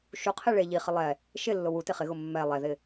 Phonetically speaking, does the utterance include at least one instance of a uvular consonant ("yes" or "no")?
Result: yes